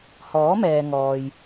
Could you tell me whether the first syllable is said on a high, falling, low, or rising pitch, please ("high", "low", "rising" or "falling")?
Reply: rising